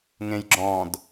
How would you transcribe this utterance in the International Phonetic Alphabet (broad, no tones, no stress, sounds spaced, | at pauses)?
ŋ ẽ j ɡ͡ǁ ɔ̃ d